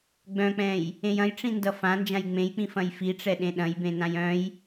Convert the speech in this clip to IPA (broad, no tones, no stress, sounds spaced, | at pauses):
ɡ͡b œ̃ k͡p ɛ̃ j | ẽ j ɐ̃ j ʈ͡ʂ ĩ n d ʌ f ã n d͡ʒ ã j ŋ͡m ẽ j k͡p ĩ f ɐ̃ j f i ʈ͡ʂ ɛ ɗ ẽ ɗ ɐ̃ j b ẽ n ã j œ̃ j